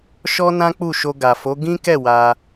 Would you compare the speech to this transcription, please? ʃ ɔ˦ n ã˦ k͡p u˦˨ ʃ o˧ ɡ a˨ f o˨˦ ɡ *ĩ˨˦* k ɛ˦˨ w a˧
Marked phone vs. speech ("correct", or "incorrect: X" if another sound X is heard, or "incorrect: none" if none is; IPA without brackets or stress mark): incorrect: ĩ˦